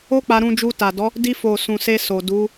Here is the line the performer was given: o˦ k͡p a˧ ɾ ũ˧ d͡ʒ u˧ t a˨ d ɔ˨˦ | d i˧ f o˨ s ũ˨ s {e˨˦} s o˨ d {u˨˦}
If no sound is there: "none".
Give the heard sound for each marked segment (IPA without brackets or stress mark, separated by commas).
e˧, u˨˦